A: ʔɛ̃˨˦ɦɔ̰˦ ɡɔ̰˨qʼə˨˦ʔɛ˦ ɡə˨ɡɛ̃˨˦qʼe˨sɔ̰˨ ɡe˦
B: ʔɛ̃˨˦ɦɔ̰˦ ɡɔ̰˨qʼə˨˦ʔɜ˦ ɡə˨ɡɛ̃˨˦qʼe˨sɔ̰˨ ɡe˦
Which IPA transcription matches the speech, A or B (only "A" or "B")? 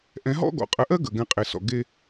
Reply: B